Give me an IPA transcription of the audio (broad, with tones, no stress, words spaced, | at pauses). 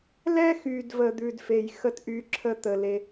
lɛ˦xy˨dvə˨ d̪ʉ˨dfe˨j xə˦t ʔy˧ǁʰə˦ t̪ə˨le˧